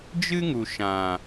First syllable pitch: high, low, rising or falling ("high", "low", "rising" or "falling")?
high